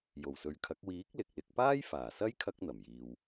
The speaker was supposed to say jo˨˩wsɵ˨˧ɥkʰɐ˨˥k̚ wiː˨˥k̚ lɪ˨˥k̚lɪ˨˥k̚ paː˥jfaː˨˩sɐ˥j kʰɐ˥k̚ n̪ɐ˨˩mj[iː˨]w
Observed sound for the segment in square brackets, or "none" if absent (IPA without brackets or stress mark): iː˨